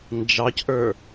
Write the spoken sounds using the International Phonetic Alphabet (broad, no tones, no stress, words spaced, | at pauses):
nd͡ʒɑcʔə˞